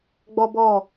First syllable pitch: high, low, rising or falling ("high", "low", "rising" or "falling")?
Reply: high